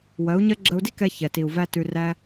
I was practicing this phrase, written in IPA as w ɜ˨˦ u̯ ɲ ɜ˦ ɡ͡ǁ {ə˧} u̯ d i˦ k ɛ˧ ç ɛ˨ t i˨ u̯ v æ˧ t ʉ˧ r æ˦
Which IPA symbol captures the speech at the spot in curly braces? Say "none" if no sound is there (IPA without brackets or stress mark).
ə˧